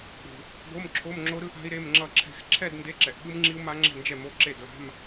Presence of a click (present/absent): present